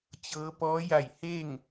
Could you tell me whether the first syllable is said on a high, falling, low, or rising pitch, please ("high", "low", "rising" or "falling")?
rising